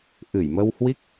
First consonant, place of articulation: glottal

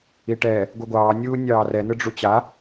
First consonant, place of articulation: retroflex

